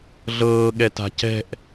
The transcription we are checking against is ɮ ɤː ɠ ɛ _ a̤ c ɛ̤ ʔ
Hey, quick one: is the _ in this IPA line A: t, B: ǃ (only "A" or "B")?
A